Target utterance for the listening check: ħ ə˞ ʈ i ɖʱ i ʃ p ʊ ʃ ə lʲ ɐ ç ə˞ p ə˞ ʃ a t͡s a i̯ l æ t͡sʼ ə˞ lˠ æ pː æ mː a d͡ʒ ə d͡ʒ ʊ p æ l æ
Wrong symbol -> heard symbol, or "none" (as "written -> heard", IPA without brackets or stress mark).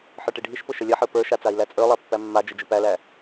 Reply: ç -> ħ